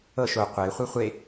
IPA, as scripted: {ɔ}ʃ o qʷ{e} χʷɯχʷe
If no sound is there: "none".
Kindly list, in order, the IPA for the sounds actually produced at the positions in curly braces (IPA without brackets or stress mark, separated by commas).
ɤ, e